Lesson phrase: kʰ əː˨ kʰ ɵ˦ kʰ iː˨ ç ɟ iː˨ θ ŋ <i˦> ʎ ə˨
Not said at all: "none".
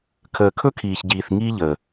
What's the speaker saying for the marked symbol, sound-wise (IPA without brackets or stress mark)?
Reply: i˦